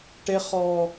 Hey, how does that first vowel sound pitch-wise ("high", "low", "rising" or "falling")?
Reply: high